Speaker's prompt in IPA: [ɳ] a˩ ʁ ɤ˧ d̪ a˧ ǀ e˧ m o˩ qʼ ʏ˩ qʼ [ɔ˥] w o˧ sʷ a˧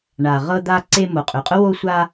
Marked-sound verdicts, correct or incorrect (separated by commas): correct, incorrect